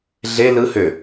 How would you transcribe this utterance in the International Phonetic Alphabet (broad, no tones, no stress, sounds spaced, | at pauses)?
ɮ e l ɯ h ø